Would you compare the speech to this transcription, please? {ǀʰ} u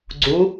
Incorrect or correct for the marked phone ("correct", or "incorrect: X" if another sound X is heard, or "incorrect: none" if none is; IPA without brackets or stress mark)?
incorrect: ɡ͡ǀ